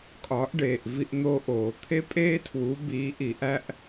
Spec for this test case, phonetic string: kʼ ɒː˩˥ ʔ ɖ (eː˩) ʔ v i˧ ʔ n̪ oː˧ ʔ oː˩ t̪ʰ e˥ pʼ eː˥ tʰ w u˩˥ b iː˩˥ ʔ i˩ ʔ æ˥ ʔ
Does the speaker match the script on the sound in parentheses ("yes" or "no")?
yes